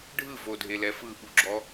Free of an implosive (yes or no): no